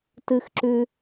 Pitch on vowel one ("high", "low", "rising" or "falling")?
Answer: low